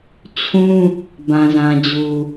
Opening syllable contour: high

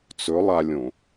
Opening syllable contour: rising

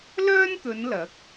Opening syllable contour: high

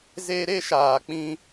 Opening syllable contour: high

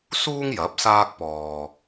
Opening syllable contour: high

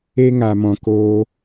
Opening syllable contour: high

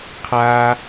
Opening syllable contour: high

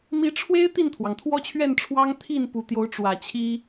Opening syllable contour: rising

